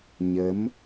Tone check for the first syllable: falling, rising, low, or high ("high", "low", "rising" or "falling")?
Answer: rising